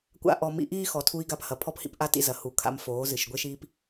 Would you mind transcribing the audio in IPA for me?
kʷa̰˦ʔɔ˧mḭ˦ ʔiː˦xɔ˨tʰu˧i̯ ɡa˧phɐ˨pʰɔ˧phḭ˦p ʔa˦tḭ˧zɐ˨ hu˨˦ kʰa̰˦mfoː˨˦zɨ˨ʃ ɡʷe˦ʃiː˦p

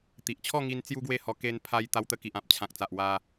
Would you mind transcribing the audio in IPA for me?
t̪i˨ʔt͡ɕʰɔ˥˧ ŋi˧n t͡sju˦ɡwe˥˧hɔ˧ ke˧npʰa˧j t̪a˧wt̪ə˧ki˨ʔã˨p̚ t͡ɕʰã˨k̚t͡sa˨ʔ wa˧

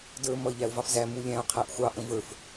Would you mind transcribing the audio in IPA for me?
də˞ mʌɪ̯ʎæʊ̯vɑfzæ mulʲæ̃ʊ̯ qʰæʔxʷɑ ʔə̃və˞f

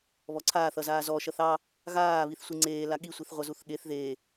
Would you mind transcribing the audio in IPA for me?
βɔǀʰaːθ ʌzaːzɔ ʃʌθɑ | ɣaː βiθsʷiŋ͡ǀeː laɠi sʷiθʁʷʌzuθɠeθ ðe

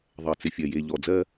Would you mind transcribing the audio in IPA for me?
ðˤɜ˨t͡sɪ˨fʲɜ˨ je˨ʎɔ˨d͡zɜ˦

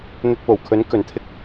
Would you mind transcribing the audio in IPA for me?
n̪ɵ˧t̚po˨˩wkʰɵ˨˥n kɵ˨nt̪ʰɪ˥k̚

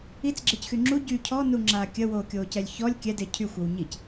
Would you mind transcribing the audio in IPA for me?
it͡sɡ͡ǁecxy ŋ͡ǁu ɟy cʰɔnuŋ͡ǁaː kʲəwoːkʲoːcɛlʲ çɔlʲ kʲɛde cʰyxʷəw ɲic

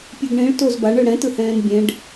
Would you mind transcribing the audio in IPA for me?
pʲɯɡɳĩɭ tozbaɳɯ ɽɛ̃tɯhɛ̃ːn bʲẽɖ

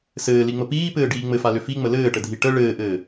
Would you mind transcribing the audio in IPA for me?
sɘːliŋ͡mə piːpɘːɖiː ŋ͡mɘfalʏ fiŋ͡mə lɘːʈədʱi ʈə ɭɘːʔɘː

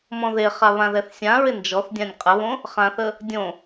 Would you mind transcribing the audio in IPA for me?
mɔ̃ðeχa βãðɛθsʲãɹɪ nd͡ʒɔθ dʲãnʲqʼəβõ | χãθə | dʲõ

